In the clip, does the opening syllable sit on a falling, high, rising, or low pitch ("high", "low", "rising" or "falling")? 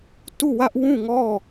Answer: falling